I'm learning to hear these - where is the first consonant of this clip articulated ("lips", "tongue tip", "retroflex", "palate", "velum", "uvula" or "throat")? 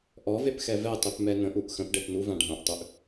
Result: throat